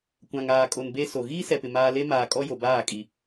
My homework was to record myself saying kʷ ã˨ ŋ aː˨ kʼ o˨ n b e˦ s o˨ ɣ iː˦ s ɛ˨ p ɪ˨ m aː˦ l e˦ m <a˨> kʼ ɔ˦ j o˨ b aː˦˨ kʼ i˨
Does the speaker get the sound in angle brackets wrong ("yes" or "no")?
yes